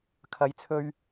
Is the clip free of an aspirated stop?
no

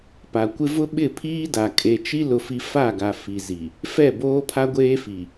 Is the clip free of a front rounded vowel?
yes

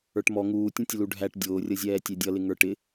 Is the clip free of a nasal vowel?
no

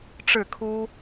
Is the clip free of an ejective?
yes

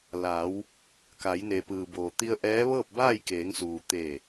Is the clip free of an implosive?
yes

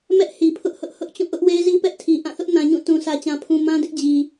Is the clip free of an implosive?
yes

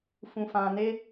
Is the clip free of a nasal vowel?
no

